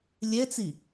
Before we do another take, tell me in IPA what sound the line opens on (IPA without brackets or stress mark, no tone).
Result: lʲ